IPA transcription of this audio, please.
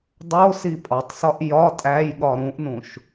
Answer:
dˤosi pʼɒtˤsɒʔ jɒ tʼæjɠɒ ɾũʔnũʃ

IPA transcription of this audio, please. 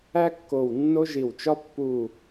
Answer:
æ˦kːo˨˩w nːo˦ʒi˨˩wt͡ʃɒ˦ pːu˨˩

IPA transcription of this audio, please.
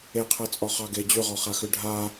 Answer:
eqʰɜt͡sʼɔχɑ ɡe d͡ʑʉʁɔχaxʉ ɖʱa

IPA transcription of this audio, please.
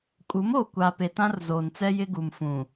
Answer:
kʼu˨˦moː˨kʷa˨pe˨ tã˦rzoː˨nt͡sɛ˦ jɪ˦ɡu˨mfũ˨

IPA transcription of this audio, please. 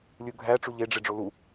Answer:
lʲuɡʱæ ʈ͡ʂuʎeɖ͡ʐe ɖ͡ʐolu

